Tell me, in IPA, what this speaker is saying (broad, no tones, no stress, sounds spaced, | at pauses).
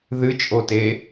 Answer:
ð ɨ t͡ʃʼ o t e